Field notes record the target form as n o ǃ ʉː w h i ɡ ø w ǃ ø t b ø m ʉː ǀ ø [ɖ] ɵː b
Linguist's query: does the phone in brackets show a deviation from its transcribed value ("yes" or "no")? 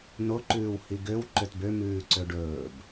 no